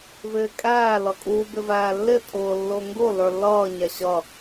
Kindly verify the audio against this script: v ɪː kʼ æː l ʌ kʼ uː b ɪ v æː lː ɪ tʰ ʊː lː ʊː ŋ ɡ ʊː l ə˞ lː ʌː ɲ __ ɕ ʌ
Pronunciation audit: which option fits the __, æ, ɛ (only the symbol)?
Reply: æ